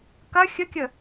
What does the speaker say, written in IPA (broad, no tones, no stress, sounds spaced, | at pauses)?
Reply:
k ɐ xʲ ə kʲ ə